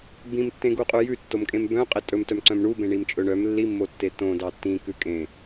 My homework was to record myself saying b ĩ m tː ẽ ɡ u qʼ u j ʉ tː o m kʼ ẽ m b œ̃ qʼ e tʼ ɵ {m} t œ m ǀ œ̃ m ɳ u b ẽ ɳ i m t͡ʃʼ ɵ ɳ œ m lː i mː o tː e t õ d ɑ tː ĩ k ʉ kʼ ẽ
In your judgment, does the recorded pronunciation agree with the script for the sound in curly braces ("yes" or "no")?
yes